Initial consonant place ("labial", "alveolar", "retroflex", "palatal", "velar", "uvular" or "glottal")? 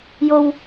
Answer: palatal